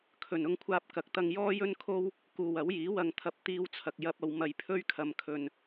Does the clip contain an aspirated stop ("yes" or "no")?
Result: yes